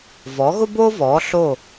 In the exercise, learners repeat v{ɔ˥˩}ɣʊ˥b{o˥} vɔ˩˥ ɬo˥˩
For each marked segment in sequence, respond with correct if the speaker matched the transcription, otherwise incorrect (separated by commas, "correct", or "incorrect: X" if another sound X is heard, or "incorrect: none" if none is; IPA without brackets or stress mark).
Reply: incorrect: ɔ˩˥, correct